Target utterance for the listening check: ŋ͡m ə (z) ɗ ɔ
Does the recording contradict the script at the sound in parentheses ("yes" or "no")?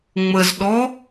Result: no